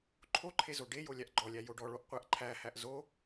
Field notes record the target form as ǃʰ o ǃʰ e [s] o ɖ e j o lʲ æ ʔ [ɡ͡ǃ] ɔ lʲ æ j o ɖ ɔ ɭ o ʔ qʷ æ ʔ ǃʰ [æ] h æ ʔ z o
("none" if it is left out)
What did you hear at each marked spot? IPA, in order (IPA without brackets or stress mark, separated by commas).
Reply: z, ɡ͡ǃ, æ